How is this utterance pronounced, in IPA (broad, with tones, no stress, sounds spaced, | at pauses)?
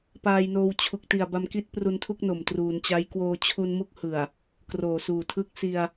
p aː˧ j n oː˧ w t͡ɕʰ u˨˩ k̚ t i˨˩ a̯ b a˧ m k i˦˥ t̚ p r u˧ n tʰ u˥˩ k̚ n o˨˩ m t r uː˩˦ n t͡ɕ a˦˥ j k w oː˧ t͡ɕʰ u˧ n m u˦˥ k̚ h ɯ˨˩ a̯ | k r oː˨˩ s uː˨˩ tʰ ɯ˦˥ k̚ s i˧ a̯